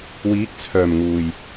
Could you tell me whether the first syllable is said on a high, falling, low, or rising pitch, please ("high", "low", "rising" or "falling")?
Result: rising